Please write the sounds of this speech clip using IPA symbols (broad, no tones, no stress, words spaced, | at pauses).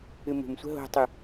ɨmṳmsʷə̤ ɦo̤tˤu